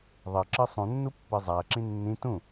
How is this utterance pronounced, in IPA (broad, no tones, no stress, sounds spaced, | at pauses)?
ðˤ ɤ ǁ ɯ sˤ ũ nː u pː ɯ zˤ a ɐ̯ ǁ ĩ nː ĩ t ũ